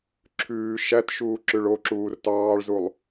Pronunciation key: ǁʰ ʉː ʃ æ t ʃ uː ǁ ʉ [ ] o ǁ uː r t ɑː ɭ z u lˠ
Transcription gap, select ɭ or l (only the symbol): ɭ